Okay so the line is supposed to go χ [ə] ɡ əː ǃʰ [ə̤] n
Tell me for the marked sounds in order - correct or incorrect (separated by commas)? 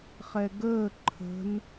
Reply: incorrect, correct